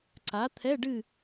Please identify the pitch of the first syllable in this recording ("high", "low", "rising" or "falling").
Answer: rising